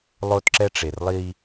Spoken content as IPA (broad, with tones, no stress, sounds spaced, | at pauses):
lˠ o˦ t ǁ ɛ˦ ʈ͡ʂ e˨ r lˠ i˦